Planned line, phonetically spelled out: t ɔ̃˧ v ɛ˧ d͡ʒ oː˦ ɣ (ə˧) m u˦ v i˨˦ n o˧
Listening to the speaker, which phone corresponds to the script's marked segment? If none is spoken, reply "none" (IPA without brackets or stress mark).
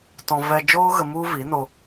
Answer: ə˧